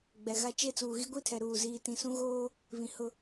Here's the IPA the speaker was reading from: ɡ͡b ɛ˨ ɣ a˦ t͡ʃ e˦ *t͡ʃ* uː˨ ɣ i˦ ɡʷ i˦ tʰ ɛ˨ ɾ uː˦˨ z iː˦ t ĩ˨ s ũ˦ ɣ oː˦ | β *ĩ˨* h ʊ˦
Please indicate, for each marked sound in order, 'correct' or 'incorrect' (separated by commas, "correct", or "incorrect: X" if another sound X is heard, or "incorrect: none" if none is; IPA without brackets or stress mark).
incorrect: t͡s, correct